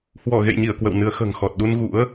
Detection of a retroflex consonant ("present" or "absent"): absent